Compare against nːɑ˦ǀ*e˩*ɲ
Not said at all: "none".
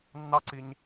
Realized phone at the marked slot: i˩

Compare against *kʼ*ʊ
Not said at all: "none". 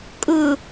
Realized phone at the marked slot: kʼ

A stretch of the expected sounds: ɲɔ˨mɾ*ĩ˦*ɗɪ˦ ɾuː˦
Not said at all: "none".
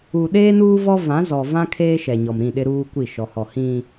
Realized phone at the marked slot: ĩ˦˨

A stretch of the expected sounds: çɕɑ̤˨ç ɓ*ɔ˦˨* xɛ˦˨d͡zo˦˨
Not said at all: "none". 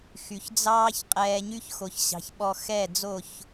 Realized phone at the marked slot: ɔ˧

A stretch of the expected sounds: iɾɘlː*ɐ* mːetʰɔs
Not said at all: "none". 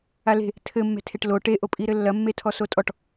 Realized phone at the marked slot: ɐ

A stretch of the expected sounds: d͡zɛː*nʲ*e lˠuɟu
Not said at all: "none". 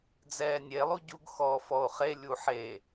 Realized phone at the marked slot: nʲ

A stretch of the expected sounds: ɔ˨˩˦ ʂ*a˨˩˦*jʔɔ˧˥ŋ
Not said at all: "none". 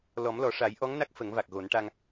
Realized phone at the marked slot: a˨˩˦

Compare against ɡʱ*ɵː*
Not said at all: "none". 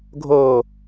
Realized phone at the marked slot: oː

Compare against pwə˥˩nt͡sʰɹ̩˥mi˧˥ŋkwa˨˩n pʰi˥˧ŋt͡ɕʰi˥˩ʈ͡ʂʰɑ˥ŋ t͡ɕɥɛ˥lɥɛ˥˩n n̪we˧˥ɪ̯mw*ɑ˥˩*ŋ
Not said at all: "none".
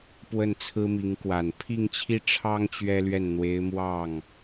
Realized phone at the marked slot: ɑ˥˩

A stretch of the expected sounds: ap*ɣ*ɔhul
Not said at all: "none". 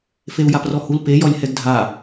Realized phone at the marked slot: r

